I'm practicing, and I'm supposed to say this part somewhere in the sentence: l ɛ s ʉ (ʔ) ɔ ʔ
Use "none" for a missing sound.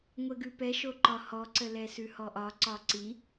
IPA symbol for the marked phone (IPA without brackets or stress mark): h